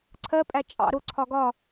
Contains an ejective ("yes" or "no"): yes